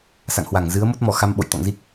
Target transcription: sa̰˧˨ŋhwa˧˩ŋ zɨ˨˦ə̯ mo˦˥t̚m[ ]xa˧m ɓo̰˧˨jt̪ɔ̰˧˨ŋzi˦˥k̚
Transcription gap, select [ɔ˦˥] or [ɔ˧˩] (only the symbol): ɔ˧˩